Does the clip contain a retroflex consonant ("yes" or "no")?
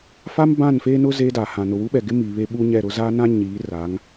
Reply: no